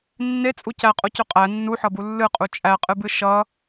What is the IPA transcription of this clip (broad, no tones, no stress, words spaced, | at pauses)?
nːet͡sʼu cæqʼocɵ qʼæ nːuħʌbu lːɨqʼu t͡ʃʼæqʼɨbɨ ʃʌ